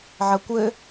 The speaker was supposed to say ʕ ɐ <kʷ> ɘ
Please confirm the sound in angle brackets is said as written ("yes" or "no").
yes